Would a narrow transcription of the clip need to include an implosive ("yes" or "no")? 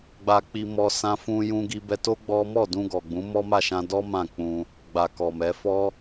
no